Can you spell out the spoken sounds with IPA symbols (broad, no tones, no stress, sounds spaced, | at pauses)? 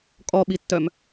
kʼ ɔ ɓ i tː œ m